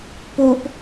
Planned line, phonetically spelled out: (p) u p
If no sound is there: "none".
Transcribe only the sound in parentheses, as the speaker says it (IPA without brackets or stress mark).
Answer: p